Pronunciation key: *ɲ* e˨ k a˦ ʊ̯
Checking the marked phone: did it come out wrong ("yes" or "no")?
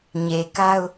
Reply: no